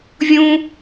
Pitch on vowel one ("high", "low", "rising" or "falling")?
high